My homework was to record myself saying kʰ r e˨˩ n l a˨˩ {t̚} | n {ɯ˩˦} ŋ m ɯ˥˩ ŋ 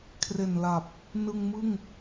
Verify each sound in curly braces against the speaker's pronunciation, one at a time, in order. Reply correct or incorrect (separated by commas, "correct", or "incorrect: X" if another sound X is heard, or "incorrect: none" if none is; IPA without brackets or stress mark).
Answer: incorrect: p̚, incorrect: ɯ˧